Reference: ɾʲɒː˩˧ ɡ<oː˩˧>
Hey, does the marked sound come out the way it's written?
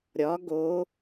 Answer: yes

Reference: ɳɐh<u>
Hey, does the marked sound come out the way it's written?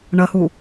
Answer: yes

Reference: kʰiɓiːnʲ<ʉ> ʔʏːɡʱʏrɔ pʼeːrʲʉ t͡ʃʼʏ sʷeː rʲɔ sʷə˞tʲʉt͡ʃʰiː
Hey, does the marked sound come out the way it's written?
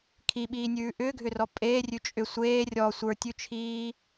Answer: no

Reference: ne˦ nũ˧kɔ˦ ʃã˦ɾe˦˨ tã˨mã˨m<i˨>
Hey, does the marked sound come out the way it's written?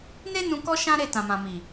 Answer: yes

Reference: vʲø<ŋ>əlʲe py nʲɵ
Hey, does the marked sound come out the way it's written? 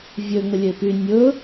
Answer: yes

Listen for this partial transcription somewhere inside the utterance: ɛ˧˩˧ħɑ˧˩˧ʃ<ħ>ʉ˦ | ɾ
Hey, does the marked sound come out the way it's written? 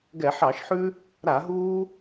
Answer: yes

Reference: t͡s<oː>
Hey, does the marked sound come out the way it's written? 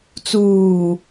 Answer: no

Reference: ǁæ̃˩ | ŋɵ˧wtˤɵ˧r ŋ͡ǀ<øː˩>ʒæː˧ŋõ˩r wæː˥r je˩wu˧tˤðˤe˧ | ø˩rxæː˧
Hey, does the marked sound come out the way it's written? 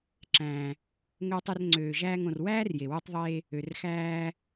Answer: yes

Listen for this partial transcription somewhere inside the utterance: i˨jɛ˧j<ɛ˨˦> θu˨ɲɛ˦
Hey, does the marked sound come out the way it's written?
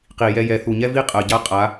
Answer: yes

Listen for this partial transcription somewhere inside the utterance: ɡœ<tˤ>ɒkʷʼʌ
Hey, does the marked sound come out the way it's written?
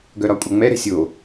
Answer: no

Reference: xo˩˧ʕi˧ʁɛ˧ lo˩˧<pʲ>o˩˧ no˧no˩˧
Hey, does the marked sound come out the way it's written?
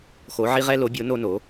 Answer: no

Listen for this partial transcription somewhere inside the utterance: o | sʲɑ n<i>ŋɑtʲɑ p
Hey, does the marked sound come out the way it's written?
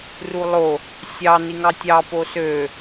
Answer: yes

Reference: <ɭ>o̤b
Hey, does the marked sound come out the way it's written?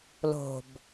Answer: no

